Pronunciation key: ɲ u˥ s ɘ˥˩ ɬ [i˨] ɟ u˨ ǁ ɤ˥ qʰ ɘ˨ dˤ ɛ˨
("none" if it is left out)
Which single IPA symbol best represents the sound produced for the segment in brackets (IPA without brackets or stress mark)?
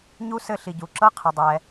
i˨